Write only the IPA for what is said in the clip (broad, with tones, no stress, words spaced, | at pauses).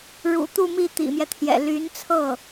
ɻṵ˨˩ t̪u˥˧mi˥˩ t̪ḭ˨˩mjɛ˦t̪ʰjɛ̰˨˩ ly˧˥nt͡sʰɤ˥˩